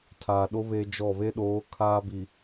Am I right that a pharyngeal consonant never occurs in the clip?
yes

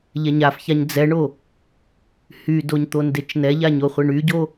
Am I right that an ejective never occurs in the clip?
yes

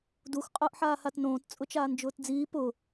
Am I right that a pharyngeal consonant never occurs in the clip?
no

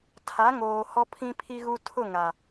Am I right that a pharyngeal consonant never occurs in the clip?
yes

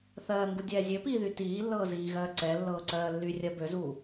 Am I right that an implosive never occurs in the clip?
yes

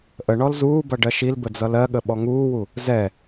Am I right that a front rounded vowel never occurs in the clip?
yes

